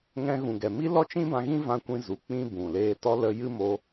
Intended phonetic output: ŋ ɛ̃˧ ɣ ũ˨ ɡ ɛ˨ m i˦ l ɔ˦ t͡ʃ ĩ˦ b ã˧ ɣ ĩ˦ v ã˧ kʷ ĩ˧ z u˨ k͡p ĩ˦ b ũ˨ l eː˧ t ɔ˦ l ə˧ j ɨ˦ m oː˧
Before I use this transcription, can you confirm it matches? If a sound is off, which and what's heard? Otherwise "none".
none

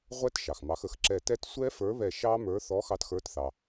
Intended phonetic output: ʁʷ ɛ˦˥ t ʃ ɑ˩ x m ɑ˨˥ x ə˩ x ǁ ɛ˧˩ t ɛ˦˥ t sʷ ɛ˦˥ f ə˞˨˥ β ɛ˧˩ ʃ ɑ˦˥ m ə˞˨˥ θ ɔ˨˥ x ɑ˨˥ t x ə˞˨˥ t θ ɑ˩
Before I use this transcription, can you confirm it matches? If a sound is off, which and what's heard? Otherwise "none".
none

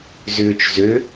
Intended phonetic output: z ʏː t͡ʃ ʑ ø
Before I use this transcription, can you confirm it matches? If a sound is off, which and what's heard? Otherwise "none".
ʑ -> z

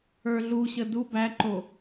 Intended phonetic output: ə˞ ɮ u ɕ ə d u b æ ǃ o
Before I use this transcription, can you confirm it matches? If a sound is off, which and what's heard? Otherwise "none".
none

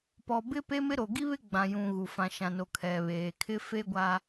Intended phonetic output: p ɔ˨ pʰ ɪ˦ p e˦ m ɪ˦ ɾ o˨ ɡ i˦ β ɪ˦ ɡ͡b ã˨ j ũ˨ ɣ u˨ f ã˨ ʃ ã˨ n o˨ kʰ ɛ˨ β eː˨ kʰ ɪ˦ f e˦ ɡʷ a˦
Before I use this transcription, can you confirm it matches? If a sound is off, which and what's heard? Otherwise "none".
pʰ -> b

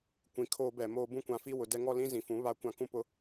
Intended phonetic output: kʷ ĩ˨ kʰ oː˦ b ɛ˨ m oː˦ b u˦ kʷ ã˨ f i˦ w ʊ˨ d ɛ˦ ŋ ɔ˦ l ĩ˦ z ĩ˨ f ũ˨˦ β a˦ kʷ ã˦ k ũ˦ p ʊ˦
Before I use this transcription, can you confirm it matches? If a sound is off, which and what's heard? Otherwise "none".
u˦ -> ũ˦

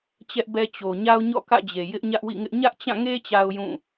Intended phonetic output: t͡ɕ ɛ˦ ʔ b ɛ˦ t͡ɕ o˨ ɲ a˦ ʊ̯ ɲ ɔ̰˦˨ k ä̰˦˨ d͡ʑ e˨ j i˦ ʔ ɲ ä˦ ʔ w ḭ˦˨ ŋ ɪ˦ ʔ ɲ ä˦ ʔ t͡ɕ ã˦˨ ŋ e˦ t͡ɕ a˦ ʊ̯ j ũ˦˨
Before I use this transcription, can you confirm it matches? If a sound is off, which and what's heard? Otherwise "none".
i˦ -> ɪ˦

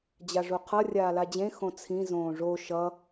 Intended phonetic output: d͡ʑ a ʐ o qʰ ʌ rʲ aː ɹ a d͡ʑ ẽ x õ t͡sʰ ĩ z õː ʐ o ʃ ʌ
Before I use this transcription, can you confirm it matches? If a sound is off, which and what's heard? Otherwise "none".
ɹ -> l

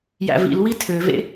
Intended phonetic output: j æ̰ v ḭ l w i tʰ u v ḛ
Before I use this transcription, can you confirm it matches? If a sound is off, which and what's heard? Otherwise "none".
u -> ø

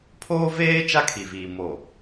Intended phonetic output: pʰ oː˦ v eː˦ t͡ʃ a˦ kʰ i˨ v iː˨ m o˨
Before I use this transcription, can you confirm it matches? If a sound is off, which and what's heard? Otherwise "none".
none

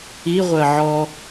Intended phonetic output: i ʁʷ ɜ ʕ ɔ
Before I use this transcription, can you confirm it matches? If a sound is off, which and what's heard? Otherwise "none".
none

